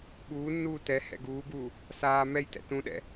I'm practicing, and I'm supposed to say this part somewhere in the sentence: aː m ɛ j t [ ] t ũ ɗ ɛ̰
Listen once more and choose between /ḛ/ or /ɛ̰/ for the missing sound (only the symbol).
ɛ̰